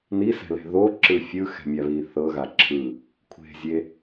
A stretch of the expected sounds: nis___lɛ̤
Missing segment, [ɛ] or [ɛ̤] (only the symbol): ɛ̤